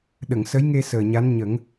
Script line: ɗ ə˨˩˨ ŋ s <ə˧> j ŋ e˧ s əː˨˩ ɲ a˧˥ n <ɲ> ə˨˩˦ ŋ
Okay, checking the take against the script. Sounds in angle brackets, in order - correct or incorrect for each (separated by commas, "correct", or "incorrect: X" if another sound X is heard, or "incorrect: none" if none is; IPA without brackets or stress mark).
incorrect: ə˧˥, correct